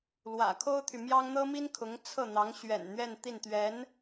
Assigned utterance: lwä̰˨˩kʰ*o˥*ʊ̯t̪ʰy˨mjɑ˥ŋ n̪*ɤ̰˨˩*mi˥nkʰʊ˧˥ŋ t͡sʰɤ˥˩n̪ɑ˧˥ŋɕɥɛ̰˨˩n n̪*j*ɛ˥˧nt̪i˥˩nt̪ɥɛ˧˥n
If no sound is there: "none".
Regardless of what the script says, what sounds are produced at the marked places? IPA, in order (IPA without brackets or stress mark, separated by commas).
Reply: o˥, ɤ˥, ɥ